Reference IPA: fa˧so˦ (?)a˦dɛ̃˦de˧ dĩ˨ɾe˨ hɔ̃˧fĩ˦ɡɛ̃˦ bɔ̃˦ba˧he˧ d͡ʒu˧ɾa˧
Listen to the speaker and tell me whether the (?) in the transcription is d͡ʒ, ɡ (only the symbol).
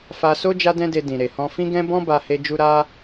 d͡ʒ